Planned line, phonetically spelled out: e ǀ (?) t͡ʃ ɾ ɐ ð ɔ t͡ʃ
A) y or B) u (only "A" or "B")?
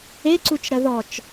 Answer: B